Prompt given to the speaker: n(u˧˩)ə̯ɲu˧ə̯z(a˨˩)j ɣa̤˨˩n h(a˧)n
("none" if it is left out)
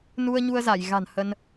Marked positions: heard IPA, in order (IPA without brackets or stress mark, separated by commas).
u˧, a˧˩, ə˧